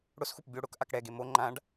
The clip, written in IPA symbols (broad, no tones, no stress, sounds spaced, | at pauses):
ɽ ʊ s x u p bʲ o ɽ ʊ k ʔ a k ɽ ɛ ɡ e m o ŋ͡ǃ ã ɖ